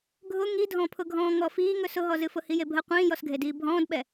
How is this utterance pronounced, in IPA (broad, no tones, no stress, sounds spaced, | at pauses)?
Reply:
ɡʱ ʊ ŋ i dʱ ɔ̃ pʰ ʊ ɡʱ ɔ̃ː ŋ ɔ f iː ŋ ɵ s ʊ ɦ ɔ z ɨ f ʊ h i j e bʱ ə qʷ ĩː j ɔ s ɡʱ e d iː bʱ ɔ̃ː d ɓ ɛ